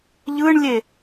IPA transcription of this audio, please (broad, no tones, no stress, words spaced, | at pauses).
ʎɯɳlʲe